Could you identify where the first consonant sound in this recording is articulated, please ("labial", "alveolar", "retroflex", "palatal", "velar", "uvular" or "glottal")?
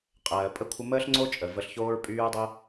uvular